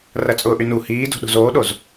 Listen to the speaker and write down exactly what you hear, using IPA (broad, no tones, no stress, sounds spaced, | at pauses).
r ɐ t͡sʼ ʊː ʔ y n u h iː d o̤ ɗ o̤ z oː ɗ o z